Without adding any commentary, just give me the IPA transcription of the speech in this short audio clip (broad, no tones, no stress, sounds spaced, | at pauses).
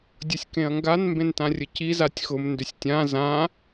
dʲ ʊ sʲ k ẽ ɐ̯ ŋ ɡ a n m b ẽ n t ã rʲ ə c i z a tʲ x ʊ m n d ʏ sʲ tʲ ã z ã